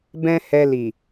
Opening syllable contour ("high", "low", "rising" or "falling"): high